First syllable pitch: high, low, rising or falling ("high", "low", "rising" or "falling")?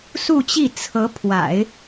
falling